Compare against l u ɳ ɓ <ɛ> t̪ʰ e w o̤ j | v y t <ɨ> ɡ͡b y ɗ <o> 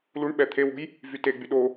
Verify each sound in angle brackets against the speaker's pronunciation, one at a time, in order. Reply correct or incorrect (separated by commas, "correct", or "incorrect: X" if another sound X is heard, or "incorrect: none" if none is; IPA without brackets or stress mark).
correct, incorrect: e, correct